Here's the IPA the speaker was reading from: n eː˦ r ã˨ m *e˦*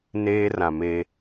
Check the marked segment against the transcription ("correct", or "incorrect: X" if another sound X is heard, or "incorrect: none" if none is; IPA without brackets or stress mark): correct